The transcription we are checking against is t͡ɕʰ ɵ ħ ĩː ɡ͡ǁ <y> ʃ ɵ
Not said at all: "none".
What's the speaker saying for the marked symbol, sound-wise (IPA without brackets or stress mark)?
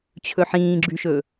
y